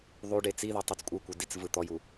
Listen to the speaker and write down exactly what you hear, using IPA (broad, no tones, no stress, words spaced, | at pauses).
ðˤuɖ et͡siðo tˤut͡skʷʼɯkʷɯ dit͡svɯ t̪ɔju